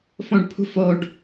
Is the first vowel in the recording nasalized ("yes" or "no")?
yes